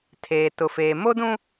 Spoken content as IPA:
tʰ eː˨ t ʊ˨ f eː˨ m o˦ d ũ˦

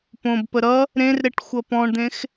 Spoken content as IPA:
p õ b p ə ɾ ʌ | ɾ ẽ r ɾ e ʈ xʷ ʌ p ɔ̃ ɳ d̪ ẽ x

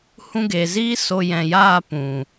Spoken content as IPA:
h ũ˧ ɡ e˨ z iː˦ s o˧ j ɛ̃˨ j aː˦˨ p ũ˨

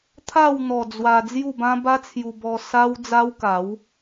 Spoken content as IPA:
t̪ʰ a˥˧ w n̪ ɔ˨˩ d͡z w a˧ d͡z j u˥˧ b ã˦ b a˦ t͡sʰ j u˧ b ɔ˧ s a˦ w d͡z a˦ w k a˨˦ w

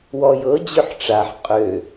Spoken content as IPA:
w ɔ j ɤ d͡ʑ ø ħ ʈ͡ʂ a ħ qʼ ø

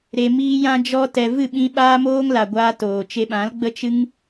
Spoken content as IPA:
ɾ e˧ m iː˦ j ã˦ d͡ʒ ɔ˦ t ɛ˧ v ɨ˦˨ ɓ ĩ˧ ɓ aː˦ m oː˦ ŋ l a˨ ɡʷ aː˧ t oː˨ t͡ʃ e˧ ɓ ã˨˦ l ɡ͡b ə˦ t͡ʃ ɨ˦ ŋ

